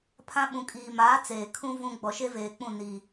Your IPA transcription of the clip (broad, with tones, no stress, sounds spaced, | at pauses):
pʰ ã˦ ɓ ũ˨ kʼ iː˨ m aː˨˦ t͡s eː˨ kʰ ũ˦ v ũ˦ ɡ͡b ɔ˨ ʃ e˦ v eː˨ k͡p ũ˦˨ n i˨